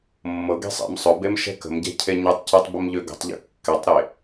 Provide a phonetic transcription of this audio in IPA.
mːɤɡɛ̤ sˤḛmsˤɵbem ʃɛ̤kə̤mɟɛ̤ cʰeɲɵtˤcɛtˤ bəmʎøɡə̤tˤʎə̰ kːɛtˤɾe

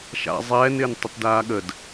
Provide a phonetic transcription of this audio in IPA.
ʃa̰ zˤɛːnɪːn tˤətdaːɠəd

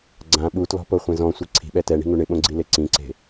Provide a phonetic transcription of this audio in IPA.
ɡ͡ǀã ɓutlɔ̤poχʷẽ zɔ̃sʷi ǀʰi̤ɓɛ tɛɳi̤ŋu ɳɪɓõɡ͡ǀile ǀĩǀe̤

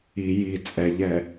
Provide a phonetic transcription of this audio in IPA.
i ji t͡sʼɛʎɛ

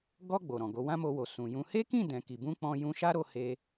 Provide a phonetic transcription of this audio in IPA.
ɡɔ˧ ɡ͡bo˨ɾɔ̃˨ɡo˨˦ wã˦mo˧wo˨ sũ˨jũ˧ he˦kĩ˦˨ dɛ̃˨ki˨ bũ˧ k͡pɔ̃˧jũ˧ʃa˦ɾo˧ he˧

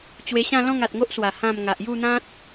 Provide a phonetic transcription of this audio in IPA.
t͡ɕwe˧ɕã˥˧ lɔ̃˥˧ŋa˨t̚ŋo˦ʔswa˨˩ hã˥˧m ŋa˨ʔju˥˧n̪ã˦t̚

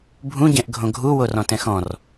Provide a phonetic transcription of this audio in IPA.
bʱũ ɟɛ̃ʔɡʱõɡʱu worɔ̃tɛ̃xɔ̃r

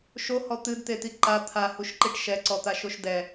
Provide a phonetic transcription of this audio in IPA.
ʃohɔ t̪ɨdt̪et̪i ǃa t̪ʰahuʃǃiʈ ʃɛǀɔt̪aʃoʃ dɛ

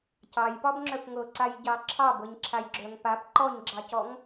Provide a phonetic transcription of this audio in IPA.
cɑjpɒbŋ͡ǁœp ŋɤǀajɟɑ ǁʰɑbɤɲǁʰajɡ͡ǁœŋ pap ǃɔɲɡ͡ǁɑcɔŋ

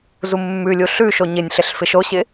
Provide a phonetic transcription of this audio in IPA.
zumːʉlʲu ɬʉʃo ɲɪnʲɬɪɬ fɪʃoɕɪ

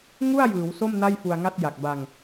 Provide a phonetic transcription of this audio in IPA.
ŋu˥˩a̯jɯː˩˦w so˥˩m na˥˩jfu˧a̯ŋa˥˩t̚ ja˨˩k̚ba˧ŋ

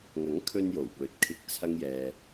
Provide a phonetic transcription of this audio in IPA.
ŋɐ˨˥ŋkʰɵ˧n jo˨˩wpɵ˨˥t̚kʰɪ˧k̚ t͡sʰɐ˥ŋjɛː˧

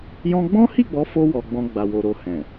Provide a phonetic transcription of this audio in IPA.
jɔ̃˦ ɡ͡bɔ̃˦hi˦˨ɡ͡bɔ˨˦fo˧ wɔ˧ɡ͡bɔ̃˧ ɡ͡ba˨wo˨ ɾo˧hɛ̃˨

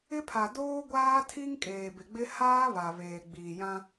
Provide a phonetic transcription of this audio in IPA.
ɪ˦pʰa˨ doː˦ɡʷaː˦tʰi˦ŋ kʼeː˨bɪ˨ɡ͡bɪ˦ haː˦βa˨ βeː˨ɡ͡biː˨jã˦

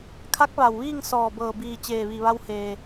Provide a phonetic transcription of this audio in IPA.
kʰa˧˥k̚ ʋa˩wʋiː˥˨ŋ sɔː˧˩bɤː˧˩biː˧˩ t͡ɕeː˧˩ʋi˧˩ʋa˧w heː˩

